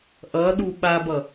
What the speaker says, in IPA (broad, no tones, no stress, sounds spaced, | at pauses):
ʔ ʌ ɗ u ɓ a b ʌ